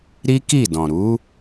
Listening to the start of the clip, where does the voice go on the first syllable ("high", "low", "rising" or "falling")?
high